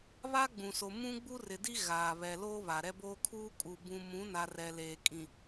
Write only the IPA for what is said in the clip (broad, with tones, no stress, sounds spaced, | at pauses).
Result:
β a˦ ɡ͡b ũ˨ s o˨ m ũ˦ ɡ͡b u˦ r ɪ˨ d i˦ ɣ aː˨ β ɛ˨ l oː˦ β a˨ ɾ ɛ˦ b oː˦ kʰ uː˦ kʼ u˨ b ũ˨ m ũ˨˦ n a˨ r ɛ˨ l eː˨ kʼ ĩ˨